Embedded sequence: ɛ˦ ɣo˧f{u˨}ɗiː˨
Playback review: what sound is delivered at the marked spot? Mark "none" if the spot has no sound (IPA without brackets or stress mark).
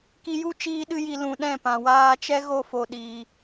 o˨